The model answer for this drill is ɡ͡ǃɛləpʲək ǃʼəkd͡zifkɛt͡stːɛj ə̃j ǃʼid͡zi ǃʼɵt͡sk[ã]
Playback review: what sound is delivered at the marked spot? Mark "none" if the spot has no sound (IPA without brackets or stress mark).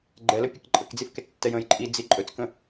ə̃